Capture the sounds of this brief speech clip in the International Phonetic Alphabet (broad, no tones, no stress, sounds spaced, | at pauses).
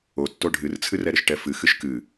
o tː o ɖʱ ɨ r t͡sʰ ɨ r ɛ ɾ ɘ ʃ ʈ ɛ f ɨ x ɨ ʃ k ɨ